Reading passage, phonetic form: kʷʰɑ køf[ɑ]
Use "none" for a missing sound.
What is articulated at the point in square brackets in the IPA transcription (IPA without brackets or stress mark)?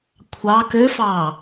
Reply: ɑː